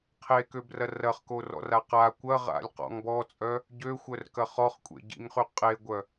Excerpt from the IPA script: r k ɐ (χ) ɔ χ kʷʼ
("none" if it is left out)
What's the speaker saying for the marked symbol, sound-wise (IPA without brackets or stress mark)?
χ